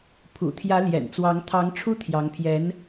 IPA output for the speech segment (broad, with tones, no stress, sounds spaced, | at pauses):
pʰ ṵ˨˩ t̪ʰ j ä˧˥ l j ɛ̰˨˩ n t͡s w ɑ˧˥ ŋ t̪ʰ ɑ˧˥ ŋ ʈ͡ʂʰ u˥ t̪ʰ j ɑ˧˥ ŋ pʰ j ɛ˧˥ n